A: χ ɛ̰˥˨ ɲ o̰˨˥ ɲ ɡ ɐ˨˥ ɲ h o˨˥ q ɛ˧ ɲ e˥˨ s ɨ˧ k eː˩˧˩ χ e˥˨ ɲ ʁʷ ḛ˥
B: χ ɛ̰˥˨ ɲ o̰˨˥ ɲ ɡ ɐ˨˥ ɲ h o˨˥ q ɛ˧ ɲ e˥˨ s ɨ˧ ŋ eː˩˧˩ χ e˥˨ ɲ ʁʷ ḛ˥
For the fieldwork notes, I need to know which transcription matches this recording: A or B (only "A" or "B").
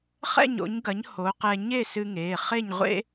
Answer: B